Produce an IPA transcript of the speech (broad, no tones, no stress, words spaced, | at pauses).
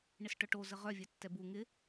ɳɪsʈœʈo zəʁœ vʲɛtːɛbu ŋɪ